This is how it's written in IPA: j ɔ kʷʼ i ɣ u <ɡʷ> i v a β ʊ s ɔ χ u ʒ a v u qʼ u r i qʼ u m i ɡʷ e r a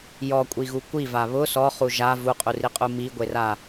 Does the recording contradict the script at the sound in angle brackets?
yes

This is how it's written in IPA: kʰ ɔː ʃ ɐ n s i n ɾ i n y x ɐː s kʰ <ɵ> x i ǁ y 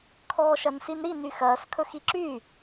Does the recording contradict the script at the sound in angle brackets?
no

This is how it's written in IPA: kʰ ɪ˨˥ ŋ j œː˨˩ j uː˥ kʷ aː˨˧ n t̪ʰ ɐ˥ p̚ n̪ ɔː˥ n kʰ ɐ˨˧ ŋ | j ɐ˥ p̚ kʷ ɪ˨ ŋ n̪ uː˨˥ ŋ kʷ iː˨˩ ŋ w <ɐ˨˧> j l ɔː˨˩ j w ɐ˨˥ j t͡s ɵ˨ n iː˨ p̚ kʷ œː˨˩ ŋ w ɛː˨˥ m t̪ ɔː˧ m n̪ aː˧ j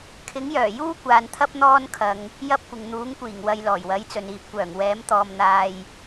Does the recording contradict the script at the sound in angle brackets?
no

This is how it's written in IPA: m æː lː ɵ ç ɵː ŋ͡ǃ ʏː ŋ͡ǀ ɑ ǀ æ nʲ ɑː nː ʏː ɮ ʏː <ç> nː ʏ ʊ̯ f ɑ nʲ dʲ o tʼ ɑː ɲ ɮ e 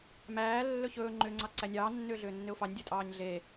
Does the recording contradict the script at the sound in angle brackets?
yes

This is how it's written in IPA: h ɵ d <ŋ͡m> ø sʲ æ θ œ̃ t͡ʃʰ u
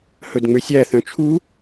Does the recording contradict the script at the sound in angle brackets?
no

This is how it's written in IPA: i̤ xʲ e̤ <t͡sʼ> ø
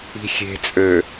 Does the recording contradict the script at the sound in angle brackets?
no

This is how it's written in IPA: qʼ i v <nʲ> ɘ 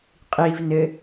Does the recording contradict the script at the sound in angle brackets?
yes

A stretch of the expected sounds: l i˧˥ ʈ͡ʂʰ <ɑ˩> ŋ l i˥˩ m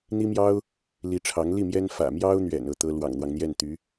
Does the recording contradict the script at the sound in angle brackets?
yes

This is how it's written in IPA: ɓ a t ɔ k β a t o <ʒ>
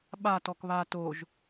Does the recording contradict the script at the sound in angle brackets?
no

